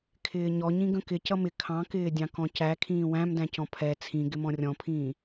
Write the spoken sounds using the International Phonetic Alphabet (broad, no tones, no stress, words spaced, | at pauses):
kʰɪːɲɔɲĩ ɡə̃kɪ cʌmɪ kʰɑ̃kɪːdʲɑ̃ kɔ̃cæ kʰĩːwæ̃mdæ̃cɔ̃ pʰɛ t͡sʰĩ ɡɪmɔ̃rʲɔ̃pʰĩː